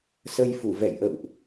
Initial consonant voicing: voiceless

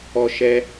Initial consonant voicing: voiceless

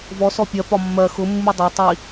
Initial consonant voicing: voiced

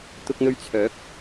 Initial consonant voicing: voiceless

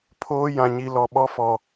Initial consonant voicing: voiceless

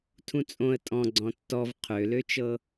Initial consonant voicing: voiceless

